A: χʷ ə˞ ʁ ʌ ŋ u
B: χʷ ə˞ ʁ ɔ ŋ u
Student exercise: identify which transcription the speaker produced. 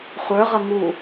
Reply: A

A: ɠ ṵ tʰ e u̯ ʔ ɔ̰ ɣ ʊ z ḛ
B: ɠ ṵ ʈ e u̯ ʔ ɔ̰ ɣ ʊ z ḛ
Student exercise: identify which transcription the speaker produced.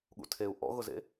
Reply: A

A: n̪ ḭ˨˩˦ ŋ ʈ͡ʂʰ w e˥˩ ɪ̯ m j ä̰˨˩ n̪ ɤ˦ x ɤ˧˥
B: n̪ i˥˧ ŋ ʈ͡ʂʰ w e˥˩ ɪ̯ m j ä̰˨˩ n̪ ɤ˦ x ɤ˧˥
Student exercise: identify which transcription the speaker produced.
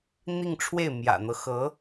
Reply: B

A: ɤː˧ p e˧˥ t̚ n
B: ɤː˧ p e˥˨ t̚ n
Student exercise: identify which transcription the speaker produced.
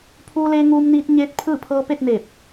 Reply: B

